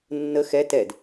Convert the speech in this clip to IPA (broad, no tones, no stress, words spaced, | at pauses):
nːə xɛ tɛd